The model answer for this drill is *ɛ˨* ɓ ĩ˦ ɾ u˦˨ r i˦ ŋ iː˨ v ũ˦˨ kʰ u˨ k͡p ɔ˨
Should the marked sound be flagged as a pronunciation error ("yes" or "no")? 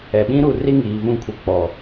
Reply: no